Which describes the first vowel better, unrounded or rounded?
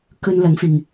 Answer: rounded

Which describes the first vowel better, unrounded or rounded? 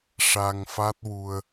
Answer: unrounded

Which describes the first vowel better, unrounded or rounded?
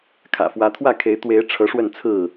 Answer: unrounded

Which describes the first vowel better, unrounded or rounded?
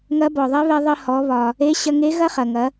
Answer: unrounded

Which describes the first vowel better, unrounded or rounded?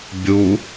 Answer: rounded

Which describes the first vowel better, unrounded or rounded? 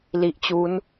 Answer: unrounded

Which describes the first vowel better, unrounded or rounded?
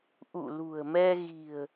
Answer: rounded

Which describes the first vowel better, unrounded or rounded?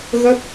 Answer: unrounded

